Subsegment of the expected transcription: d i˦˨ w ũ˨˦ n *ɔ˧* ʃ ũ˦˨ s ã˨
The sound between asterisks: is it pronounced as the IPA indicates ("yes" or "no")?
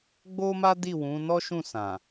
no